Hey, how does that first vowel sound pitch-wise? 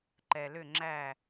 low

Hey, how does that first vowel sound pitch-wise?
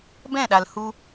falling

